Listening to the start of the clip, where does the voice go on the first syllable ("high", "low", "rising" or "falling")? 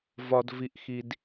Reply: low